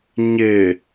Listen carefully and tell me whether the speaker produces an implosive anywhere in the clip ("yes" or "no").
no